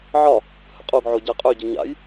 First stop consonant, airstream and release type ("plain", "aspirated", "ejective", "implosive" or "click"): ejective